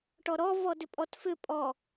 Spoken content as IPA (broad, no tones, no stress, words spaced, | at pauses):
ʈɔɾɔ vɔdʏpʼɔtfʏ pʼɔ